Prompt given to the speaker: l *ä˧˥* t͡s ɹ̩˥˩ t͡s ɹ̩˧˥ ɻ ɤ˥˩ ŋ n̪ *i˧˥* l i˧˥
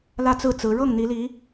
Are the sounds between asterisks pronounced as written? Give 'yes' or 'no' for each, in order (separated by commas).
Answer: no, yes